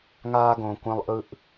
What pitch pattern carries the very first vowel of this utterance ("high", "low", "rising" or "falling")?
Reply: high